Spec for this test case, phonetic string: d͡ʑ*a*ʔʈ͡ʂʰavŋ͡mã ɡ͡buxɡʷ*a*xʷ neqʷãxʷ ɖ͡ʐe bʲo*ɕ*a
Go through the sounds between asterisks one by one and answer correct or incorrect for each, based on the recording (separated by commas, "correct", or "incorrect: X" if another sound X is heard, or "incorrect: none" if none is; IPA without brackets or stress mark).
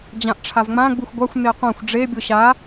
incorrect: ã, correct, correct